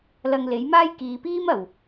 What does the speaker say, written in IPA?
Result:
l ɐ˧ ŋ l e˨˥ j m aː˥ j k iː˨ p iː˥ m ɐ˨˩ w

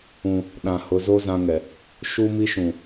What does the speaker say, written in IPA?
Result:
ũ˨ | ɗ ã˨ h ʊ˨˦ z o˦ z ã˦ ŋ ɛ˨ | ʃ u˦ m i˦ ʃ ũ˨

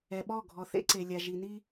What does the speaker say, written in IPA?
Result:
ɛ˨ ɓ ɔ˦˨ ɡʱ ɔ˨ θ ḛ˦ ǀ e˨ lʲ a˨ ʒ i˨ n i˦

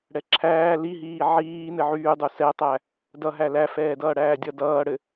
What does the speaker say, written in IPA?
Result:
ɽ ɛ ǁʰ æː l i ɦ iː ʕ iː n ɘ ʕ yː dˤ u s ɛ tˤ æ | d ʌ ɦ æ l æ f ɛː d ʌː ɽ æː dʲ ʌ d ʌː ɽ ɘ

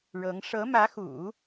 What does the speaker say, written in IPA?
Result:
ɻ ɤ˧˥ ŋ ʂ ɤ˧˥ m ä˧˥ x ṵ˨˩˦

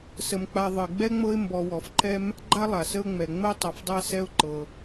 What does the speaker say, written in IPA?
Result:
s ə˩ m k͡p a˨ ðˤ ə˩ ɪ̯ ɡ͡b ɛ˥ ŋ͡m ɤ˦ ɪ̯ m b ɔ˨ w ɔ˩ f ǃ ɛ˦ m | ɡ͡ǃ a˥ lˠ a˩ s ə˦ ʊ̯ ŋ͡m ɛ˩ ŋ͡m ə˦ ʊ̯ tˤ ɤ˨ f dˤ a˥ s ɛ˦ ʊ̯ ǃ ɤ˩

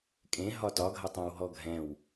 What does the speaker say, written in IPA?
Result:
kʼ ẽ ɦ ɒ t ɒ ɡʱ ɐ tˤ æ̃ w ɦ ɔ ɡʱ ɛ̃ w

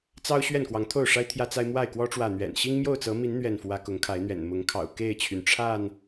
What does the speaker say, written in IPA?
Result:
t͡s ɑ˦ ʊ̯ ɕ ɥ ɛ˥˨ n k w ɑ˨˦ ŋ t̪ʰ o˥˨ ʊ̯ ʂ a˦ ɪ̯ t̪ʰ j ä˦ t͡s a˦ ɪ̯ m w a˥˨ ɪ̯ k w ɔ˦ ʈ͡ʂ w ä˨ n̪ ɥ ɛ̰˨˩ n ɕ i˦ ŋ m j o˥˨ ʊ̯ t͡s ɤ˨˦ m i˨˦ n n̪ ɥ ɛ˥˨ n f w ä˦ k ʊ˨˦ ŋ kʰ a˨˦ ɪ̯ n̪ ɥ ɛ̰˨˩ n m ʊ˨˦ ŋ kʰ ɑ̰˨˩ ʊ̯ k e˥˨ ɪ̯ t͡ɕʰ y˩ n ʈ͡ʂʰ a˥˨ n

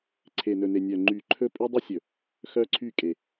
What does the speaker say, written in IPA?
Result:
ǀʰ e˨ n ɵ˨ n e˨ nʲ œ˨ ŋ͡ǃ y˨ ǃʰ ɵ˦ pʼ y˦ dˤ i˦ sʲ ɵ˨ | x œ˦ ǀʰ y˦˨ kʼ e˨

